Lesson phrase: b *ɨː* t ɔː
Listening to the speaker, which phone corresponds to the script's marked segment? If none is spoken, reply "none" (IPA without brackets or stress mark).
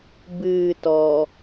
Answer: ɨː